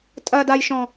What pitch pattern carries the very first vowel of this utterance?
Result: low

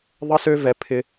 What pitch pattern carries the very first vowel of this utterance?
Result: high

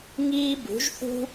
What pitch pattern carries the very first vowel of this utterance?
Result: high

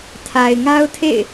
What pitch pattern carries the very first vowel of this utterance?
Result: low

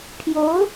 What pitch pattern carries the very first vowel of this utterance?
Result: rising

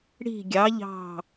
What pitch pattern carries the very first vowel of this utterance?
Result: falling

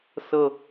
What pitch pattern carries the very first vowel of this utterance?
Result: falling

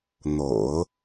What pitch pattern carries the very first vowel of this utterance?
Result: low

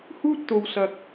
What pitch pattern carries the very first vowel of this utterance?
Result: high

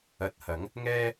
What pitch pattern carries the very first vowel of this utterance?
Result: low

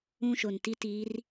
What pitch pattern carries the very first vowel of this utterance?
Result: high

